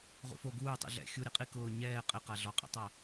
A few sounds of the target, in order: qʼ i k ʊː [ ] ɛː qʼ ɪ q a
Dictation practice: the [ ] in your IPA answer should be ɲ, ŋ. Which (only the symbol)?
ɲ